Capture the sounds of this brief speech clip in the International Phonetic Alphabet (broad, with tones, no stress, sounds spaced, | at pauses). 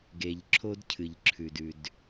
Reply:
ɡ e˩ ʎ ǁʰ o˥ d cʰ ɨ˩ ʎ ǁʰ ʉ˩ d ʉ˩ d